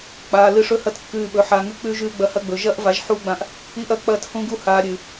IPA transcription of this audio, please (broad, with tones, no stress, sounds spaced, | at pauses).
k͡p aː˨ l ɨ˧ ʂ ɵ˦ h ɐ˦ t kː ʉː˧ ɓ ɵ˨˦ ħ aː˨ ŋ ʉ˧ k͡p ʉː˧ ʒ ʉː˧ ɡ͡b ɐ˧ h ɐ˦ ɡ͡b ɵ˨ ʒ ɐː˦ ʔ v a˨˦ ʒ ħ uː˧ ɡ͡b ã˧ ʔ | i˦ ʔ ɐ˦ k͡p ɐː˦˨ t h ũ˦ ɡ u˦ h aː˧ ɾʲ ʉ˨